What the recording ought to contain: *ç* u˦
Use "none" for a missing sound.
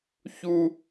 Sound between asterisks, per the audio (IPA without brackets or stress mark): ç